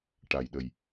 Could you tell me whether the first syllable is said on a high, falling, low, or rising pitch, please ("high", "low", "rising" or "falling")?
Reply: low